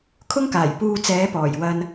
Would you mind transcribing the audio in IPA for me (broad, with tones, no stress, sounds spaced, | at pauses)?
kʰ ʊ˥ ŋ k aː˨˩ j p uː˧ t͡s ɛː˨˧ p ɔː˨˩ j w ɐ˧ n